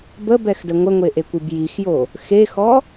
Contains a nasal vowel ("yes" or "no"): no